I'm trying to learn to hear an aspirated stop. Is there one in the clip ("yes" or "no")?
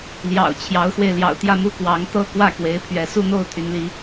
yes